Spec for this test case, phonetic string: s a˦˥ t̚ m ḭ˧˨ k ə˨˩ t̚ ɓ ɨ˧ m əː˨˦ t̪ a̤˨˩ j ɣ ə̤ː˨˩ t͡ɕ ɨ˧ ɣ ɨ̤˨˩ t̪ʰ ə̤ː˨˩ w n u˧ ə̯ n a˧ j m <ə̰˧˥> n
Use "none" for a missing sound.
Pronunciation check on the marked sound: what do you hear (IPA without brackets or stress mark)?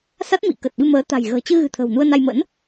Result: ə̰˧˥